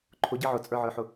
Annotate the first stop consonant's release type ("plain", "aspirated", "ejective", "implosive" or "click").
click